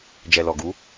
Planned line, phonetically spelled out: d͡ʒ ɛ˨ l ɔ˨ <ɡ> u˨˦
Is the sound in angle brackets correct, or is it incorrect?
correct